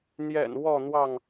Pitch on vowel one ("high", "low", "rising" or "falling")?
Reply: low